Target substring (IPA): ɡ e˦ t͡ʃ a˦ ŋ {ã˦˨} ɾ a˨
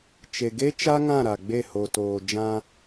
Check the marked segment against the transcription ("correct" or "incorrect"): correct